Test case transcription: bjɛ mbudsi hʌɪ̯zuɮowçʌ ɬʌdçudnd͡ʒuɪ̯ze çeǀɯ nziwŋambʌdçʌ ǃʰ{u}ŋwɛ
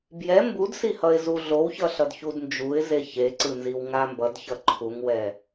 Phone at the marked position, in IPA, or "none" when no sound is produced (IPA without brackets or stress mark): u